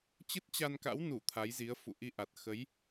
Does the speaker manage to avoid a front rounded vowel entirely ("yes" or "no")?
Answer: yes